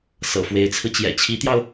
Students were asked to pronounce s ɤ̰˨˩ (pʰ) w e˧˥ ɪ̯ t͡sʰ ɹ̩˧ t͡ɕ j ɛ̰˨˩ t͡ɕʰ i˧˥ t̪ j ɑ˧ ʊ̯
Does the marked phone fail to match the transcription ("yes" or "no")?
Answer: yes